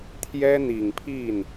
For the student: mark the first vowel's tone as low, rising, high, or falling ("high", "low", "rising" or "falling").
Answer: high